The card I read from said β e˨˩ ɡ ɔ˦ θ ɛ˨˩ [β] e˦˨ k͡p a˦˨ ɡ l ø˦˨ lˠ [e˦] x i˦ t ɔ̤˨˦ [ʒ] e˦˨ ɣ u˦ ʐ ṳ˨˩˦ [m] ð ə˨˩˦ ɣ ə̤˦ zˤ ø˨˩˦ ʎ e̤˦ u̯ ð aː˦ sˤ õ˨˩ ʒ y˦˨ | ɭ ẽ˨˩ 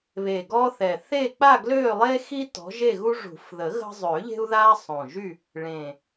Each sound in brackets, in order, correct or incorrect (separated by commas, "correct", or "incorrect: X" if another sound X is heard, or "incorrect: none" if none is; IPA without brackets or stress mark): incorrect: θ, correct, correct, incorrect: f